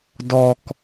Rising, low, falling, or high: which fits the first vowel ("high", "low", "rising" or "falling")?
high